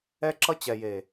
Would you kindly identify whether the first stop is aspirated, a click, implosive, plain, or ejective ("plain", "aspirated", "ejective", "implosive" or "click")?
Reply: click